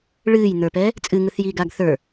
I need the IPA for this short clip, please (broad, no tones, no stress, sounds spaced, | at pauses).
ɭ ɨː j n̪ ə˞ p ɛ | t͡sʼ ɨ ŋ ɯ θ j iː ɡ aː ɡ θ ə˞